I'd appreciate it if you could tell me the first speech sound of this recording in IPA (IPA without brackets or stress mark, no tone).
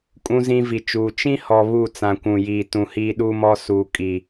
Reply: kʼ